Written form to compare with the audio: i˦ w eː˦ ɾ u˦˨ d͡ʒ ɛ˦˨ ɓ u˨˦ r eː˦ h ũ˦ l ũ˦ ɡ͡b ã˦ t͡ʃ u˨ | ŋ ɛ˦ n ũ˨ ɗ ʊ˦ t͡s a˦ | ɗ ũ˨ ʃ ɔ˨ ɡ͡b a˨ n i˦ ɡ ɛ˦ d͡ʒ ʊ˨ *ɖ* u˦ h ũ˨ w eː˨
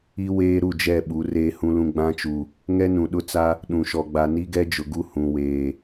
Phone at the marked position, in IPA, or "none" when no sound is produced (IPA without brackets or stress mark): ɡ